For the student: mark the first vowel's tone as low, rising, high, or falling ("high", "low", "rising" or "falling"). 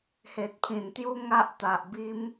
low